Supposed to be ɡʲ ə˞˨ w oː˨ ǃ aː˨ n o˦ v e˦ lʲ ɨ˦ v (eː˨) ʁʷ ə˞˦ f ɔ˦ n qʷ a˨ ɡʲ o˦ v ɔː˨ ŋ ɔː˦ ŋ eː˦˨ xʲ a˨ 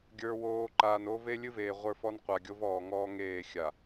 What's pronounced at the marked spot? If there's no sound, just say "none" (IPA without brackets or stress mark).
eː˨